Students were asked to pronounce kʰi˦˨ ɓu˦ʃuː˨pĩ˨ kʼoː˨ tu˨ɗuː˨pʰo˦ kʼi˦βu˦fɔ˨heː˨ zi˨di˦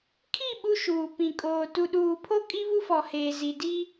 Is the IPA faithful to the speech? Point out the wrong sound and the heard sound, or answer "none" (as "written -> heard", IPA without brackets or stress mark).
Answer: none